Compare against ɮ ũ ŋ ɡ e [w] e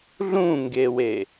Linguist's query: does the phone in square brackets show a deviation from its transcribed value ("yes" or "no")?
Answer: no